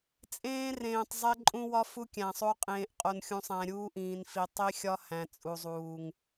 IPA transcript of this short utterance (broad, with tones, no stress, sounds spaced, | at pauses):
t͡sʼ ẽː˦ r ẽː˨ tˤ zˤ e˦ ǃʼ ũ˦ w ɒ˦ f u˦ kʲ æ̃˨ sˤ o˦ qʼ ẽː˨ ʔ qʼ o˨ n xʲ ũ˨ sˤ æ̃˨ ɾʲ uː˦ ʔ ĩː˨ n f i˨ tˤ i˦ xʲ ɒ˦ h æ̃˨ t͡sʼ u˨ zˤ uː˨ ŋ